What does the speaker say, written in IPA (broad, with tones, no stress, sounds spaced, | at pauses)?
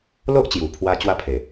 l o˦ ʔ t͡ɕ j u˨˩ pʰ w a˧ t͡ɕ w a˥˧ pʰ e˨˩